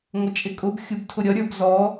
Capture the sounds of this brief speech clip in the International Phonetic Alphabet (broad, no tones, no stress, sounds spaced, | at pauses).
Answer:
ŋʷ ə t͡ʃʼ ɪ kʼ ʊ b xʲ u b tʰ ʊ ɾʲ ʌ ɾʲ ə˞ b z ɔ